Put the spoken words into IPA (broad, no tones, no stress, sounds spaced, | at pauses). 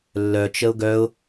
lː œ t͡ʃ ə ʊ̯ ɡ œ ʊ̯